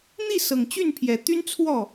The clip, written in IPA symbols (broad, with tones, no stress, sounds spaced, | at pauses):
n̪ i˥˩ s ɤ˨˩ ŋ t͡ɕ y˥˩ n pʰ j ɛ˨˩ t̪ y˥ n t͡sʰ w ɔ˥˩